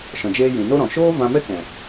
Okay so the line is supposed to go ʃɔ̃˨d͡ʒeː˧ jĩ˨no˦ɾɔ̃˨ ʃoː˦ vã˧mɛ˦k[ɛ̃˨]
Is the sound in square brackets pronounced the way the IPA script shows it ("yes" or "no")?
yes